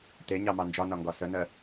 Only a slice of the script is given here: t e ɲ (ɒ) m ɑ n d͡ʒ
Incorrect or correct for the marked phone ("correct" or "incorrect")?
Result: incorrect